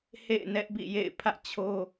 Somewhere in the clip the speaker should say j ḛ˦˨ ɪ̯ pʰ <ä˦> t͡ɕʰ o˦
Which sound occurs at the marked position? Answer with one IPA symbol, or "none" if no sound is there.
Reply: ä̰˦˨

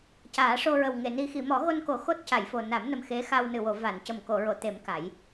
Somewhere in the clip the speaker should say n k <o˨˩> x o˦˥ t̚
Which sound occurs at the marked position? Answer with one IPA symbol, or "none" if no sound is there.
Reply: o˨˩˦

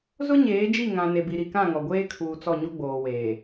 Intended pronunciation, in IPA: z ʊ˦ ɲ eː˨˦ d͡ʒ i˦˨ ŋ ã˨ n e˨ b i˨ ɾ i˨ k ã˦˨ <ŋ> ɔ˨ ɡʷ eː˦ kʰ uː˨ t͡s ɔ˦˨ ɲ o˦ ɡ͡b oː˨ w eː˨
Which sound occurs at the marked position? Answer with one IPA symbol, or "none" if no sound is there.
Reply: ŋ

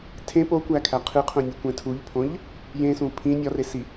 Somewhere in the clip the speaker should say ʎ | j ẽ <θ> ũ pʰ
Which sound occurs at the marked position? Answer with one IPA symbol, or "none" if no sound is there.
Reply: s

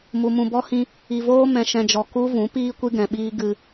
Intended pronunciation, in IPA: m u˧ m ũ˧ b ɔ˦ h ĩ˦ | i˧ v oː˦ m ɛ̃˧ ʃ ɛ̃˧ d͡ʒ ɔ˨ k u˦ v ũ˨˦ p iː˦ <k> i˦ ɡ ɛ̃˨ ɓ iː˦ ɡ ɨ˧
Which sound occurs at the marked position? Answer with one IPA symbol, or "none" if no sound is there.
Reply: kʷ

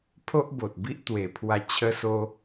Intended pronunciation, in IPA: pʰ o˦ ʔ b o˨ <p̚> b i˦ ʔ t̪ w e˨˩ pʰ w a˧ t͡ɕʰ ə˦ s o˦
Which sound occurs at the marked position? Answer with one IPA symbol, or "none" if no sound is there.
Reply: t̚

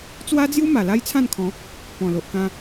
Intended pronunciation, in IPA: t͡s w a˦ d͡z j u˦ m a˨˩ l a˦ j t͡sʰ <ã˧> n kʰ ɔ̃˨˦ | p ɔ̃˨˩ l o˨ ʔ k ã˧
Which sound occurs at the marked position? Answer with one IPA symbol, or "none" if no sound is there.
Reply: ã˥˧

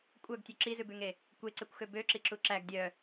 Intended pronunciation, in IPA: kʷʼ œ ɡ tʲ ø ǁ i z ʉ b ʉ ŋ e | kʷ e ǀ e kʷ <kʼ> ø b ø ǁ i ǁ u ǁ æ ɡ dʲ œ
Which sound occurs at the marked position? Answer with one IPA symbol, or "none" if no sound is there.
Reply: x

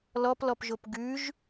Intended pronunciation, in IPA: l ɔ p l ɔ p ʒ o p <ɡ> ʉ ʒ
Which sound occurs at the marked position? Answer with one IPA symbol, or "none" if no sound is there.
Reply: ɡ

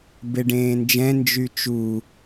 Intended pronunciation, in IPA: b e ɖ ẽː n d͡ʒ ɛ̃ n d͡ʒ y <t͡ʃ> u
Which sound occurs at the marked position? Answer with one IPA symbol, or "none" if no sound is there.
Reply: t͡ʃ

